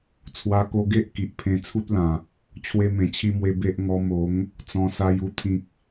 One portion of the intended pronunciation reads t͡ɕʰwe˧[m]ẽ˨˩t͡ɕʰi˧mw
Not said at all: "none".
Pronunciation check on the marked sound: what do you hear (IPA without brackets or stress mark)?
m